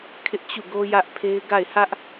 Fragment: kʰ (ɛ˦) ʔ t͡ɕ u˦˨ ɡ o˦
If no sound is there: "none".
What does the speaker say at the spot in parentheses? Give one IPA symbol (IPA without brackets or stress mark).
ɪ˦